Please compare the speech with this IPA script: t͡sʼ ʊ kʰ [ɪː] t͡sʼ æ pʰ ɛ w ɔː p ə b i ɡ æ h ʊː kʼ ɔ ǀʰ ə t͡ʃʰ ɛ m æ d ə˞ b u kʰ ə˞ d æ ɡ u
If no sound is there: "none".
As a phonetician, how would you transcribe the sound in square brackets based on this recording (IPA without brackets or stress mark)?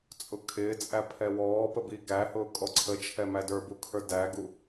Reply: ɪː